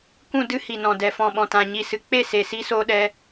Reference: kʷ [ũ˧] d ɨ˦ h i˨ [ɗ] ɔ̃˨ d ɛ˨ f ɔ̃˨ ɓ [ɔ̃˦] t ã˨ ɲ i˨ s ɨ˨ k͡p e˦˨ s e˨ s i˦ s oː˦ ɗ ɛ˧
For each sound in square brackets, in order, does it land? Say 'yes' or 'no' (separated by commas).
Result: no, no, no